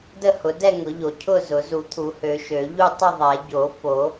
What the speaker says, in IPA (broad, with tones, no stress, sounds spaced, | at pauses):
d ə˥˨ h ʊ˨˩˦ d ɛ˥˨ ŋ ʊ˨˩˦ ʎ o˨˩˦ cʰ ʊ˥˨ z ʊ˨˩˦ z u˨˩˦ t̪ʰ u˨˩˦ h ø˨˩˦ ʃ ø˨˩˦ ʎ u˥˨ tˤ ə˥˨ ðˤ ɛ˨˩˦ ɟ o˨˩˦ f o˨˩˦